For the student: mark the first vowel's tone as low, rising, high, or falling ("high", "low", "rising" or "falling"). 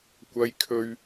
high